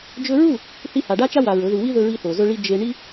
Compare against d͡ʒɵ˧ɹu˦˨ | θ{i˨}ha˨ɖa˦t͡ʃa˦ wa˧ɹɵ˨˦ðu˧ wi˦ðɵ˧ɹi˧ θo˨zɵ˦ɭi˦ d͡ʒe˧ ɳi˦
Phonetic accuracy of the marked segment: incorrect: i˧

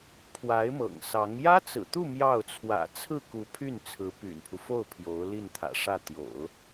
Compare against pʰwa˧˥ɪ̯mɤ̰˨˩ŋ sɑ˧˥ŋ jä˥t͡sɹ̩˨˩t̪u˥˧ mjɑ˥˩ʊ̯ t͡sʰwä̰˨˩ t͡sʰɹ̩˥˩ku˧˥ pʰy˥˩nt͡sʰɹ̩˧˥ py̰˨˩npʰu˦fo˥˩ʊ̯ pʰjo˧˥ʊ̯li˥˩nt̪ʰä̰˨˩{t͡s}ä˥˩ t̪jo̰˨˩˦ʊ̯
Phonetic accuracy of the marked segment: incorrect: ʂ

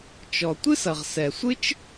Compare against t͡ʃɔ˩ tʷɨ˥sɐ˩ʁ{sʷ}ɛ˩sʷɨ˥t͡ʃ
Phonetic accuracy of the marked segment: incorrect: s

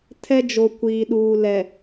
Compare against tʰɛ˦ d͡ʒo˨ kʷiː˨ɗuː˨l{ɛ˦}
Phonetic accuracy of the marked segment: incorrect: ɛ˨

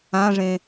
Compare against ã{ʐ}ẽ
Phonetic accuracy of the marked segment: correct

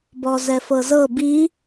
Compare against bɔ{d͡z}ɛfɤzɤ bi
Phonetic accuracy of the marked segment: incorrect: z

